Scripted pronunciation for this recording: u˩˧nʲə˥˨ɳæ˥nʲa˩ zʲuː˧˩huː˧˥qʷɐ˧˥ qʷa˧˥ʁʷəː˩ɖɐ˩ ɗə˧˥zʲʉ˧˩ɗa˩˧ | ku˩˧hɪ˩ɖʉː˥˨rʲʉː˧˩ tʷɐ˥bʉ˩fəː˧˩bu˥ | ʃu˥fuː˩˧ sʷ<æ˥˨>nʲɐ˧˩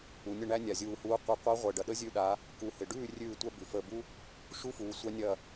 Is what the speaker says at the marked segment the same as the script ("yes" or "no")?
no